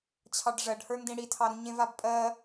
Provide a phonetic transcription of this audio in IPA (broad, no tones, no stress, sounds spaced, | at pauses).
t͡ɕʰ ɑ ɖ ʐ ɜ ɖ h ə˞ n d ĩ ɽ i tʰ ɑ ɾ ũ ɲ ẽ v a b pʼ ɜ